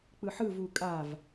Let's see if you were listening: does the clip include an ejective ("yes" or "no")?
yes